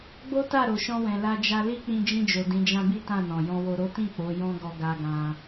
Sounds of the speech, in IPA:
ɡ͡bo˦ta˦˨ɾo˨ ʃɔ̃˧wɛ̃˨la˧d͡ʒa˧ li˦k͡pĩ˧ d͡ʒĩ˧d͡ʒo˨ dĩ˨˦d͡ʒã˦bi˦ tã˦˨nɔ̃˨ jɔ̃˨wo˨ɾo˨˦tĩ˦˨ k͡po˨˦jɔ̃˦ɡɔ˧ ɡa˧ɡã˧

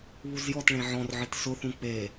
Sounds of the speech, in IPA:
βuzjɔt ɭẽʕɔ̃rʕɨt sʊθũ k͡pe

